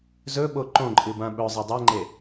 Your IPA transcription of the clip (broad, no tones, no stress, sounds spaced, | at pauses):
z ɵ ɓ o ǃ õ ǃʼ ɨ b ã ɓ ɵ zˤ ɤ dˤ ɤ ŋ͡ǃ e